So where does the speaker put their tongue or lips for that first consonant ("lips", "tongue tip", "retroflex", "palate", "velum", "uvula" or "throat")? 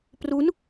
lips